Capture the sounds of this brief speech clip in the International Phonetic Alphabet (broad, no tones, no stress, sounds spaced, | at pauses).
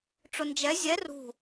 ʈ͡ʂ ʊ n d͡ʒ ɛ zʲ ɛ r ṳ